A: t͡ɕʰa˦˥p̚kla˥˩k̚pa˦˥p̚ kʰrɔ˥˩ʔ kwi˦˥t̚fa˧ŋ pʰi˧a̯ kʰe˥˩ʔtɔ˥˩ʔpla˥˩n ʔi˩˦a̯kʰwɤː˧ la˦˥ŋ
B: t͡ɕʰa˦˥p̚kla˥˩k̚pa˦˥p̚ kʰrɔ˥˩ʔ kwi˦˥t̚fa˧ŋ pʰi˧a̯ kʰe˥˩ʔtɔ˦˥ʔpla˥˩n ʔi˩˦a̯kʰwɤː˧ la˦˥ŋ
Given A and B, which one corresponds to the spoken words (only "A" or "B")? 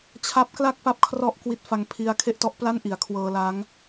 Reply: B